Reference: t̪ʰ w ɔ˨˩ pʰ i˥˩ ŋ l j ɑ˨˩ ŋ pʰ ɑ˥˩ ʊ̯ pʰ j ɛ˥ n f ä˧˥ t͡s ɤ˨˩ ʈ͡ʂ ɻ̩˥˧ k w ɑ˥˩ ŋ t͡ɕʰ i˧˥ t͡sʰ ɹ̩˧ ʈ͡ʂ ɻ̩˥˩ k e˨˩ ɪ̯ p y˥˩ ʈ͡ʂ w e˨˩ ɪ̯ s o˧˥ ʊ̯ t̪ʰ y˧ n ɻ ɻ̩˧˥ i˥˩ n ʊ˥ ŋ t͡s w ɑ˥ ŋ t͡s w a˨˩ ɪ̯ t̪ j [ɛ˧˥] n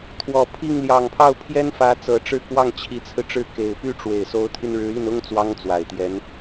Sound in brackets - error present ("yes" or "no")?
no